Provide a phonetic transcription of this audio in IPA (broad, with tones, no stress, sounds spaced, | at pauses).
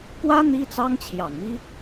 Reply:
k w ä˥ n̪ i˥ t͡s ɑ˥ ŋ t͡ɕʰ j ɑ˨˩ ŋ m i˥